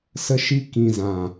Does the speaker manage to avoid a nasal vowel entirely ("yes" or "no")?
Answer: no